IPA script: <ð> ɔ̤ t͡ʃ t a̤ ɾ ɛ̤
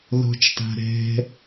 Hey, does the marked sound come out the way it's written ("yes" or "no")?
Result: yes